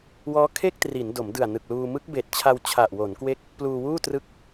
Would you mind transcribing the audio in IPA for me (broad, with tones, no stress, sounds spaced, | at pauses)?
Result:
w ɔː˦˥ kʰ e˥˩ k̚ t r i˩˦ n d o˩˦ m d ɯ˨˩ a̯ n ɯ˨˩ k̚ l uː˧ m ɯ˦˥ k̚ b eː˨˩ t̚ t͡ɕʰ a˧ w t͡ɕʰ a˨˩ ʔ w o˩˦ n k w e˦˥ k̚ | p l uː˧ w uː˥˩ t r ɯ˦˥ k̚